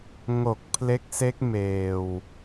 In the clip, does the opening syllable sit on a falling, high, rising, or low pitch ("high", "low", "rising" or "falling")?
low